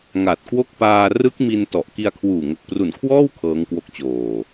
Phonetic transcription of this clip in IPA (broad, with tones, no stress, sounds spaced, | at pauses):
ŋ a˨˩ t̚ k w o˥˩ k̚ p aː˧ r ɯ˦˥ k̚ m i˧ n t ɔ˨˩ ʔ k i˧ a̯ kʰ w uː˨˩ ŋ o˨˩ k̚ p r u˨˩ n kʰ w ɔː˥˩ w kʰ ɤː˦˥ ŋ k w o˦˥ k̚ t͡ɕ oː˨˩